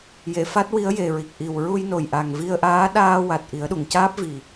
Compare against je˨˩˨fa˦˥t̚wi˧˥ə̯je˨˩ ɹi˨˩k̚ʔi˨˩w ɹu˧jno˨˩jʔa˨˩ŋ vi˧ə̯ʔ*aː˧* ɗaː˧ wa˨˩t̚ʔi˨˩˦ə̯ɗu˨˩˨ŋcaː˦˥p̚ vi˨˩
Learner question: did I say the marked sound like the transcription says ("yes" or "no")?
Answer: no